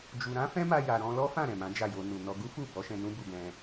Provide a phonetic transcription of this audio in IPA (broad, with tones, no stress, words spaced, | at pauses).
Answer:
d͡ʒu˨ɾã˨˦ fɛ̃˦ma˧ja˨ ɾɔ̃˧lɔ˦fã˦˨ ɾɛ̃˨mã˨˦d͡ʒa˦˨jo˧ nu˨nɔ˧ ɡu˦fu˦˨ bɔ˨˦ʃɛ̃˧nũ˦ bu˧ɡɛ̃˧